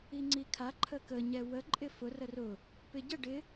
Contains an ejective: yes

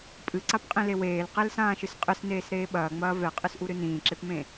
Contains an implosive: yes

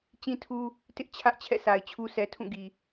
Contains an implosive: no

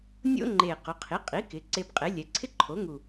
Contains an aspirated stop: yes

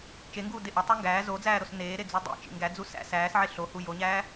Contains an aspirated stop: no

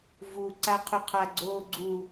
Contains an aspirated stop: yes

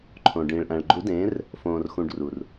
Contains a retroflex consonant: yes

